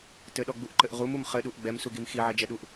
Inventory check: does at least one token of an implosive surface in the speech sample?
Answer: yes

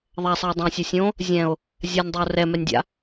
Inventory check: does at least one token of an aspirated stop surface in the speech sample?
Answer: no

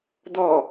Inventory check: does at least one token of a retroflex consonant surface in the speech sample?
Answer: no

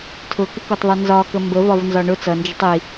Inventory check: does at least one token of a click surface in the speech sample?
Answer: no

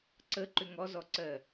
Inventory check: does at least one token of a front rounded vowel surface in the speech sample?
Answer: yes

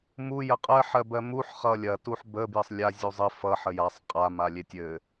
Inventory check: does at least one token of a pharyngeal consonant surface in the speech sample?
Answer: yes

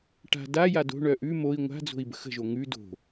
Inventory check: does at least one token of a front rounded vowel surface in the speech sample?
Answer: yes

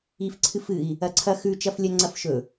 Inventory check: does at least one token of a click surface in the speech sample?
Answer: yes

